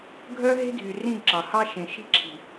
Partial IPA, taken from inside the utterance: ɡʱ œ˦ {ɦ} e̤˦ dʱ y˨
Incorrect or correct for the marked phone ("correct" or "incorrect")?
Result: correct